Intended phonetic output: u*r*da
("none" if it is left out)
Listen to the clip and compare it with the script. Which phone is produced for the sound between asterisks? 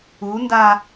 n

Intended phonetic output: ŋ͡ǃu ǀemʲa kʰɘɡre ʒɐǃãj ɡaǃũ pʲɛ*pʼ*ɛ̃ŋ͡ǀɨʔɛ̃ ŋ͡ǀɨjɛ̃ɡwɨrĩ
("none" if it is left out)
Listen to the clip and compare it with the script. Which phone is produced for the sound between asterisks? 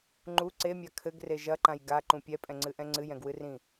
pʼ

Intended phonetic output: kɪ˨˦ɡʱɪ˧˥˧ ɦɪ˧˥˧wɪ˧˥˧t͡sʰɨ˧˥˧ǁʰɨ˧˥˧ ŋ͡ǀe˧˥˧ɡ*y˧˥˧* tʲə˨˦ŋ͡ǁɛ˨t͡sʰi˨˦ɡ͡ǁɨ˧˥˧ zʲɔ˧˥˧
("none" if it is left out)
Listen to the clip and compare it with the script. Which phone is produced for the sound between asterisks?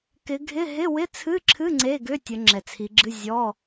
ʏ˧˥˧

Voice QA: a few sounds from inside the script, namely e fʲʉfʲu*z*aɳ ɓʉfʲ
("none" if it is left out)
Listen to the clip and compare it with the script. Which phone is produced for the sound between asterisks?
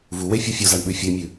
z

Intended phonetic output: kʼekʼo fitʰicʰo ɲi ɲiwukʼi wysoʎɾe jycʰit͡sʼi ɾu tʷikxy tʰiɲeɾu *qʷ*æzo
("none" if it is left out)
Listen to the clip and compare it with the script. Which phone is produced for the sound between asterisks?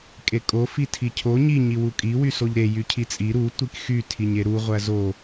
ʁʷ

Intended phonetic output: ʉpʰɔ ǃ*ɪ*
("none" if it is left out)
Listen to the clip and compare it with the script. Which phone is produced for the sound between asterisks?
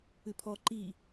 i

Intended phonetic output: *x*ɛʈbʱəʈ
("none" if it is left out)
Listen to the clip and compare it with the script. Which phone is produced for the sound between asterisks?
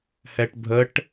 h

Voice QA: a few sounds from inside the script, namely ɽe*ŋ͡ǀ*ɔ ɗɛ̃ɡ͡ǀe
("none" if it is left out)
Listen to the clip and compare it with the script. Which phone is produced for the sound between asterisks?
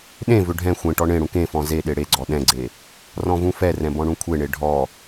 ɡ͡ǀ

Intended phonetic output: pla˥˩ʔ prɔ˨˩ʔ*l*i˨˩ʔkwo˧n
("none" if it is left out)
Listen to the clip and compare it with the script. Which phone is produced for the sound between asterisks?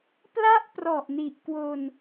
n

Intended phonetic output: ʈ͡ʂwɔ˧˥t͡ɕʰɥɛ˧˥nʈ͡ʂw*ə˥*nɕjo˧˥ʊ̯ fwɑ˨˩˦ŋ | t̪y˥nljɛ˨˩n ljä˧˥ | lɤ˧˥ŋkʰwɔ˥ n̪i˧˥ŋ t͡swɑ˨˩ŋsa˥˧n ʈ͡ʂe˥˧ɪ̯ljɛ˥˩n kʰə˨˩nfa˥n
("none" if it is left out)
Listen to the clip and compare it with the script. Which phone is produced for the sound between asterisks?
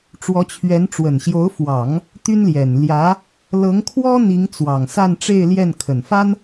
ə˨˩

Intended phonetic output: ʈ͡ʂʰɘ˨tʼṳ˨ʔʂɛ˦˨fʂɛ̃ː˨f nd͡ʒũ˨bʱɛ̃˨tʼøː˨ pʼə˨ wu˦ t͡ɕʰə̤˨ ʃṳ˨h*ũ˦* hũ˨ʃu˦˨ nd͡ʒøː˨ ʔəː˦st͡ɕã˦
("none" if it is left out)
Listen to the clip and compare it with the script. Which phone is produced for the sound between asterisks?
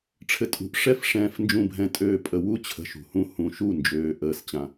ũ˦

